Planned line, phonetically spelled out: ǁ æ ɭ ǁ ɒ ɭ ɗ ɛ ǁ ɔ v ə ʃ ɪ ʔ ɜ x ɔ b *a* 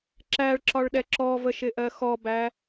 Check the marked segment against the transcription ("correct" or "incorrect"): incorrect